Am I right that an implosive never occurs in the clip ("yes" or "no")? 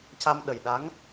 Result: no